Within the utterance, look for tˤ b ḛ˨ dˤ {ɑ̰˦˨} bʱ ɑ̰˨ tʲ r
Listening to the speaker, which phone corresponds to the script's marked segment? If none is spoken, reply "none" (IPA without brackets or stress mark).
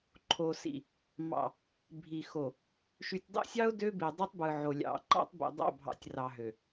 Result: ɑ̰˦˨